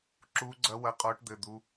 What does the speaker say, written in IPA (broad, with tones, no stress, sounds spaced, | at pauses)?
ǁ uː˨˦ ɡ͡ǀ ɐ˨˦ w ɐ˨˦ qʼ ɔː˨˦ ʈ d̪ ɘ˩˧˩ d̪ u˩˧˩